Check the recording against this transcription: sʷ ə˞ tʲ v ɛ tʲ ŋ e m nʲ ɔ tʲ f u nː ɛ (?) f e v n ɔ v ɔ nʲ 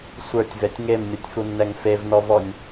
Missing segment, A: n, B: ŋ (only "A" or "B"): B